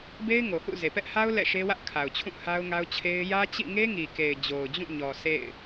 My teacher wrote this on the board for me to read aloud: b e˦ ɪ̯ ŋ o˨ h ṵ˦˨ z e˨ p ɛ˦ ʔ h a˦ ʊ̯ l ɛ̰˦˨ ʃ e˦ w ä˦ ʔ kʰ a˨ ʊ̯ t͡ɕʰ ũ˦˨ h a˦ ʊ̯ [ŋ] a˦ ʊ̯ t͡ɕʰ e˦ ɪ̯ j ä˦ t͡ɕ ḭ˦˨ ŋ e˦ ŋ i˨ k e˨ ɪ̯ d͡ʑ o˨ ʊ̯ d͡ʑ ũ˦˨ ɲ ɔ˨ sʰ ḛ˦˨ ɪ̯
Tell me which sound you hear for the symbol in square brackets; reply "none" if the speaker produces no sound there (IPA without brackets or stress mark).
ŋ